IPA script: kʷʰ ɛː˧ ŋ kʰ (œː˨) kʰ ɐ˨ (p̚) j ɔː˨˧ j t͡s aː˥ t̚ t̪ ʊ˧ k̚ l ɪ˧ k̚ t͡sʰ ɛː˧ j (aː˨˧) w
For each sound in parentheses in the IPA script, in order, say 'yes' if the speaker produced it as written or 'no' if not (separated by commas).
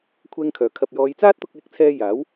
no, yes, no